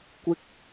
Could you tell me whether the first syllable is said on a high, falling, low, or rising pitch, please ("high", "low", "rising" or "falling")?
high